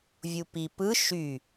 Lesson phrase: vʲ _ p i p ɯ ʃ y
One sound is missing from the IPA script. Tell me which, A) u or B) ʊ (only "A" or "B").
A